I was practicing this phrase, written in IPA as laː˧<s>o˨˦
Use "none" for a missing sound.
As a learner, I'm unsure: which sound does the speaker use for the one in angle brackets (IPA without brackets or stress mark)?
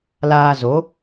z